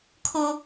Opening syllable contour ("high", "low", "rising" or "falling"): high